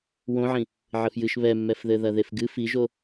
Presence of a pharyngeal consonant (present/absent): present